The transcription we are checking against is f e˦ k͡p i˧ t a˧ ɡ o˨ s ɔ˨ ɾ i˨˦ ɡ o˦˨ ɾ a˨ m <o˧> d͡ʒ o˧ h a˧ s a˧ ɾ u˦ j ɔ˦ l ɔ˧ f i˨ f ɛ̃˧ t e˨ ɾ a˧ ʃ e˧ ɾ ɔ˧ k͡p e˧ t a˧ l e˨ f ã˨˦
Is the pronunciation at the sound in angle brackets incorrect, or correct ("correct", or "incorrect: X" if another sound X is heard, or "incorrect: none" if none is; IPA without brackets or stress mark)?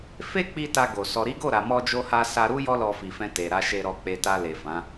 incorrect: ɔ˧